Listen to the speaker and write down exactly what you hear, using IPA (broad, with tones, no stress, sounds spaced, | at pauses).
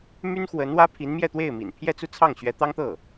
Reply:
m y˥ n x w ə˧˥ n w ä˥ pʰ i˧˥ n m j ɛ˥˧ t̪ w e˥˩ ɪ̯ m ḭ˨˩ n pʰ j ɛ˥˧ t͡s u˥˧ t͡sʰ ɑ˥˩ ŋ ɕ ɥ ɛ˧˥ t̪ ɑ˥ ŋ t̪ ɤ˥˩